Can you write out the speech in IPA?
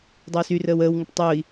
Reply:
dˤoːsyrəːw əːwŋəʈ tˤoi̯

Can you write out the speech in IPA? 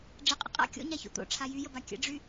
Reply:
ɖ͡ʐəqʼə̰ qʼa̰ kʲo̰ɲaço̰ t̪o̰ʈ͡ʂʰa jyjəba kʲə̰ɖ͡ʐy

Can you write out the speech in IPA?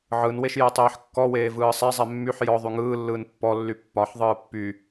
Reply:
ʕɯnweʃ jɛtˤeːħkːɔweː vɯːsˤɛzˤɛ mːyħ jɔ ðˤyŋɯːlːɯːn pːɔlːy pːɒħðˤɯː pːy

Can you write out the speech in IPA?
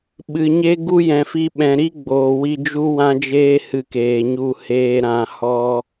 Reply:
ɓɨ˨ɲe˦ɡu˦ jɛ̃˨fi˧ɓɛ̃˨ ɾi˦ɡ͡boː˨wi˧ d͡ʒu˦wã˦d͡ʒeː˦hɨ˧ keː˨ɲu˧ heː˧ɾã˧ hɔ˦

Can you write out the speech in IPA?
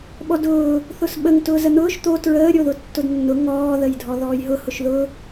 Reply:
ɓɔdʊː | θʊsɓəŋ tʊːzən̪ʊːʃ t̪o tɹəː ɾʲoðʊtːʊdnːʊ ŋɔː ðəjdʱɔðɔːjɦʊ hʊʃðʊ

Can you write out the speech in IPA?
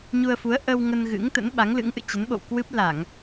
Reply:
ɲu˧ə̯fu˨˦ə̯ ʔə˧w ŋə˧nɣɨ̰˧˥ŋt̪ə̰˧˥n ɓa˨˦ŋlɨ̰˧˥ŋʔɨ̰˧˨ t͡ɕə˨˦nɓo̰˧˨w kwɨ˦˥p̚ la˧˩˨ŋ

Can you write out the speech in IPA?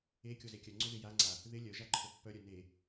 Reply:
e kʲozekʲœŋ͡ǀo ðɪjaŋ͡ǀa | ðɪ lʲœ ʒaǃʰopːœɾʲœ ne

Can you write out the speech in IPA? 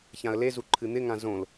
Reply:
çãə̯lezu ǃʰɨn̪ɪŋã zõl

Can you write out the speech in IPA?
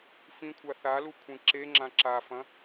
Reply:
fĩkʷʰa θalu kʷʰĩǁeŋ͡ǁã ǁafɐ̃

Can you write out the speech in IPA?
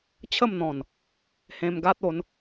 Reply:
t͡ɕʰə˥˧m n̪ɔ̃˨˩n | hẽ˧mɡa˦t̚o˨˦n

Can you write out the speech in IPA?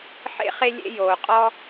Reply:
ħḛ˥χe˥ lʲḛ˥joː˩qʼɔ˥

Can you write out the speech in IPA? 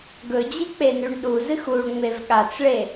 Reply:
ɡɵd͡ʑɨk͡penʉɳ ɗuzɨx uɭŋ͡mev ɠat͡sɭe

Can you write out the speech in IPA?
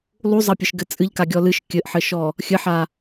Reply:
lˠuzˤɐpʲɘʃɡɘ t͡sʼɨʎkaɡʲɔ lɨʃ kʲɘʔħɘʃɔ | xʲɘħa

